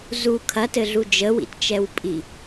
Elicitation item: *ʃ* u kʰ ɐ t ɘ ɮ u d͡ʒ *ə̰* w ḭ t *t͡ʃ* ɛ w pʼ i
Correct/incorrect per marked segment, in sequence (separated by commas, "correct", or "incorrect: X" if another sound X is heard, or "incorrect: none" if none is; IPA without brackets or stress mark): incorrect: z, incorrect: ə, correct